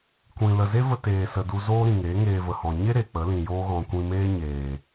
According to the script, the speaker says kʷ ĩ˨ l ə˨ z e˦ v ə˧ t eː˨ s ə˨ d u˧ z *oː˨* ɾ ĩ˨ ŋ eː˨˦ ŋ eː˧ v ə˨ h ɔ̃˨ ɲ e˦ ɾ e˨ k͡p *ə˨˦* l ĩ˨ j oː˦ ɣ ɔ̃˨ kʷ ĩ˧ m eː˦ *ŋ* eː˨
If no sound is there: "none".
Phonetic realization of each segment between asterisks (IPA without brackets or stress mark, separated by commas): oː˦, ə˨˦, ɲ